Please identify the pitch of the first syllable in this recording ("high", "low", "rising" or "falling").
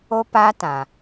high